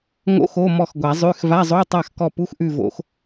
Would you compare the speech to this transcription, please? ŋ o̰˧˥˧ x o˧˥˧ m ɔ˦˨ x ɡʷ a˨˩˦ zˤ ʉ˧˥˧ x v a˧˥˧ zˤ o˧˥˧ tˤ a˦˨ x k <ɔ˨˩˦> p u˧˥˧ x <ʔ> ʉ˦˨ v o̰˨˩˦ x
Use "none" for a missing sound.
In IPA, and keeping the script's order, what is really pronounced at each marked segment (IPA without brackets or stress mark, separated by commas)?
ɔ˦˨, ʔ